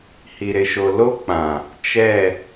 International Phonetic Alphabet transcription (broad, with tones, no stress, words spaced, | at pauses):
hi˨ɾɪ˨ʃo˨ lo˦k͡pã˨ | t͡ʃɛ˦˨